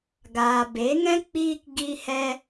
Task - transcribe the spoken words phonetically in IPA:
ɡ aː˨ b e˨˦ ŋ ɛ̃˦ k͡p iː˦ k ɡ i˦ h ɛ˦

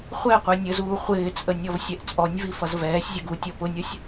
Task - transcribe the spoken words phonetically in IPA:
χʷ ɛ qʷ ɛ nʲ ə z uː χʷ ɪː t͡sʼ ə nʲ ɔ v sʲ ɛ ʔ t͡sʼ ɔ nʲ v i f ʌ z v ɛː sʲ zʲ ʌ ɡ u tʲ ɔ p ʊ nʲ ɔ sʲ

